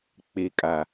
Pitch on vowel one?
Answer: low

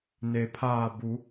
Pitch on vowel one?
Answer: low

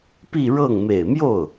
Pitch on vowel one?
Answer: falling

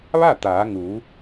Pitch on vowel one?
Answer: falling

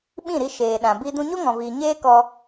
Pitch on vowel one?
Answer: falling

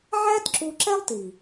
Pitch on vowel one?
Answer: high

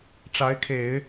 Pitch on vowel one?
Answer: rising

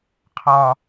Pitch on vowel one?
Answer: low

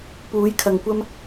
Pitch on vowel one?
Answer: rising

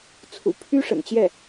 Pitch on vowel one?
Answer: low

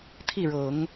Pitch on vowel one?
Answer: falling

